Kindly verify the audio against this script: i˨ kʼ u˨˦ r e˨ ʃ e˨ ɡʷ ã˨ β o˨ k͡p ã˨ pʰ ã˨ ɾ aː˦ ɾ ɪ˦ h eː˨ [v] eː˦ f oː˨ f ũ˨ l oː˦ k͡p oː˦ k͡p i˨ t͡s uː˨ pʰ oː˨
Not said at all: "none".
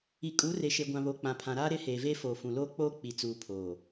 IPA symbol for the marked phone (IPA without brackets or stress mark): v